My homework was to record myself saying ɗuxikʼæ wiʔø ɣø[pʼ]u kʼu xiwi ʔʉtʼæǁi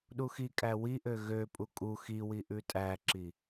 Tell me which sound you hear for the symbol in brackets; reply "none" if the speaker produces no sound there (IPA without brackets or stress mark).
pʼ